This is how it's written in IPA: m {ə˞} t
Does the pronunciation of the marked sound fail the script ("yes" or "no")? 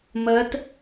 yes